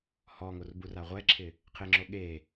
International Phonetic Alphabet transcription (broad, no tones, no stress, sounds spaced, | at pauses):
h ɔ ŋ o r b u r a ʁʷ ɛ ǁʰ ɪ | qʰ ɪ ŋ͡ǁ o ɠ e